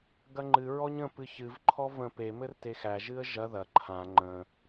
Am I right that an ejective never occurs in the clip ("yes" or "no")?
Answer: yes